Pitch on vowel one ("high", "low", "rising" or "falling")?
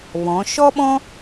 rising